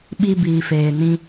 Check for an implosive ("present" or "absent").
present